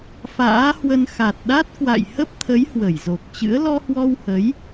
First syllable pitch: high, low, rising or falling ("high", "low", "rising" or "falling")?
rising